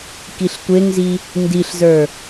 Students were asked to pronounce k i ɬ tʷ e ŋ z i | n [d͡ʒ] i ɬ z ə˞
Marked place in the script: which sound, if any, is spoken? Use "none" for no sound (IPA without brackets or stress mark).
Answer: d